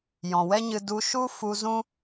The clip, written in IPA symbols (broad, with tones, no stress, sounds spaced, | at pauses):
j ɔ̃˨ w ɛ˦ ɲ ɨ˧ d u˧ ʃ u˦ f u˧ z ũ˦